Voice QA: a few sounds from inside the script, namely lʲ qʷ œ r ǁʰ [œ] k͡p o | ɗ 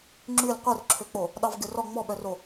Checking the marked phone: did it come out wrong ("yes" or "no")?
yes